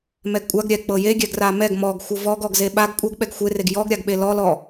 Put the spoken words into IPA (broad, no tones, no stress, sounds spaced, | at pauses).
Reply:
m ɛ ɡ kʷʼ a ɡ ɾʲ ɛ k͡p ɤ j e ɡʲ ɛ ɡ r a m ɛ ɡ m ɔ ɡ xʷ ɤ v ɔ ɡ ɔ ɡ z e ɓ a ɡ kʷʼ ɤ ɡ ɓ ɛ ɡ xʷ e r e ɡ j ɔ ɡ ɾʲ a ɡ ɓ e l ɔ l ɔ